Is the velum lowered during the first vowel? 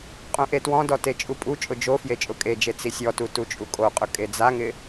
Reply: yes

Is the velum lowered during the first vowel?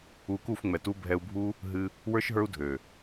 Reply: no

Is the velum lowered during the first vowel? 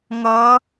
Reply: no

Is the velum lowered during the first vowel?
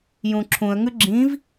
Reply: yes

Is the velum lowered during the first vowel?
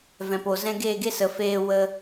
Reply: yes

